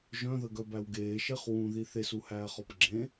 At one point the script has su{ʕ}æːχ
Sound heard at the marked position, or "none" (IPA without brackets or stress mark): h